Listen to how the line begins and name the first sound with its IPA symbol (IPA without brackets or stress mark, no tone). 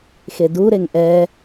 x